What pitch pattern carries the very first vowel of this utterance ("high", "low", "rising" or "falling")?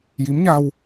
rising